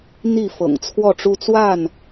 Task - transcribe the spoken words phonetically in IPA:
n̪ i˥˨ f ɤ̰˨˩ ŋ t͡sʰ w ɔ˥˨ ʈ͡ʂ u˦ t͡s w a˥˨ n

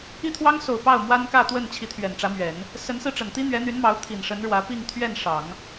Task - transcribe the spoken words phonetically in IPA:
i˥˩ t̪ʰ w ɑ˥ ŋ s o˨˩ ʊ̯ p ɑ˥˩ ʊ̯ m w a˥ n k ä˥˧ t̪ w ə˥˩ n t͡ɕʰ i˧˥ t̪ʰ ɥ ɛ˨˩ n ʈ͡ʂ ä˧˥ m ɥ ɛ˨˩˦ n | s ə˧˥ n s ɹ̩˧ ʈ͡ʂ ə˨˩ n t̪ i˥ n̪ ɥ ɛ˧˥ n̪ y˧˥ n m ɑ˧˥ ʊ̯ t̪ʰ i˨˩ n ʂ ə˧˥ n ɻ w ä˧˥ p i˥˧ ŋ t̪ʰ ɥ ɛ˥˩ n ʂ ɑ˨˩˦ ŋ

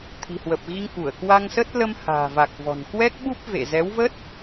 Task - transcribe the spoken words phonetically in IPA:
t̪ʰ i̤˨˩ h w ə˨˩ p̚ ɣ i˧ ŋ ʔ u˧˩ ə̯ k w a˧ ŋ s ə˦˥ t̚ l ə˧ m h a̤ː˨˩ v a˨˩ k̚ v ɔ̤˨˩ n k w ɛ˦˥ k̚ ɓ u˦˥ p̚ v ḛ˧˨ z ɛ˨˦ w v ə˦˥ t̚

